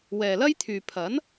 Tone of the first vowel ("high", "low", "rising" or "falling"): low